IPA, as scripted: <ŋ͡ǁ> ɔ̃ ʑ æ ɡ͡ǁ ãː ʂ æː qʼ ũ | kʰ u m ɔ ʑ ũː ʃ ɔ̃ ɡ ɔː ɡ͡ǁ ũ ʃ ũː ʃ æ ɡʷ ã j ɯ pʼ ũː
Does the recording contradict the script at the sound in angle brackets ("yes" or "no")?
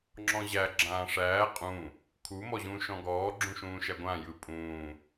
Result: no